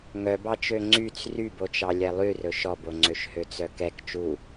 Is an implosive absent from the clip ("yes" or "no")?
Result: yes